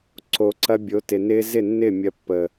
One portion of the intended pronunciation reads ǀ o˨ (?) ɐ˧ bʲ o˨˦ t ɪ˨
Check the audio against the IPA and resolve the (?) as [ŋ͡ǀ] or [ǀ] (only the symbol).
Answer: ǀ